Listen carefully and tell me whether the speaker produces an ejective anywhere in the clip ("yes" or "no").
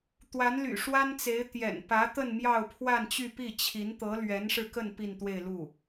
no